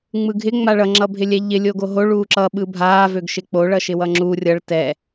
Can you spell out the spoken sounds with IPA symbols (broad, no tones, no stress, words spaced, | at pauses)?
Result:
ŋ͡mɯɡʱɪ ŋ͡maɭʌ ŋ͡ǁʌbʱɪlʲɛʎɪ lʲoɡoɦo ɭuːǁʌ ɓɯbʱaː vøɡʃɪk͡po ɭʌʃɪwʌŋ͡ǁu rʲʌɭ tɛ